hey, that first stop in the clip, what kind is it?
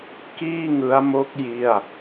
plain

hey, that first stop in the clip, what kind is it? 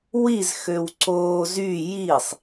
click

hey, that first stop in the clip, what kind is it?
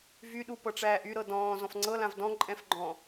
implosive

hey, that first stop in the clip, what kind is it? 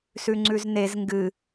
click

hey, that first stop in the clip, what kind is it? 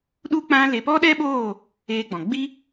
implosive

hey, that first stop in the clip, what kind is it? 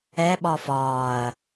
implosive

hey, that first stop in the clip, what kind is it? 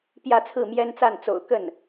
plain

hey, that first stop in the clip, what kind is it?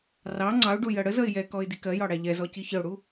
click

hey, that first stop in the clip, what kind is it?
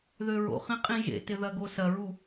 ejective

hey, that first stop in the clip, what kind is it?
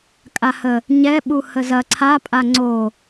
ejective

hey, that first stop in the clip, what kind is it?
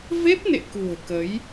plain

